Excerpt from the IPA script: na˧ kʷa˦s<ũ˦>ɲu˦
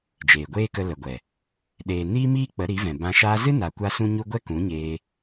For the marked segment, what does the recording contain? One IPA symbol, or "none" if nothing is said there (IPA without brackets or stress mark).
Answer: ũ˦